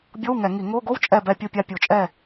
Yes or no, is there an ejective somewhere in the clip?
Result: yes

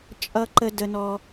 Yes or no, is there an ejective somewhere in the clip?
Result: yes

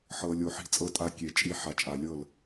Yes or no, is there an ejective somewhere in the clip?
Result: yes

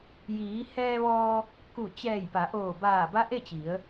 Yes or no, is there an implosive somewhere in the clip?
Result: no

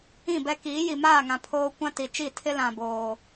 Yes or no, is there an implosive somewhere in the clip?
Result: no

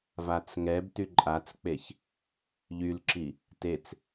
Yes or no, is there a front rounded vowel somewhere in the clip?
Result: yes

